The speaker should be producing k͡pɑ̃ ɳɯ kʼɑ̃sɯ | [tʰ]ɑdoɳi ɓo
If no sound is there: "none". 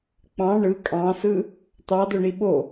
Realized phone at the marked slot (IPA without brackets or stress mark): t̪